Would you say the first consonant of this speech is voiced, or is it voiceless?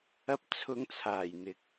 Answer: voiceless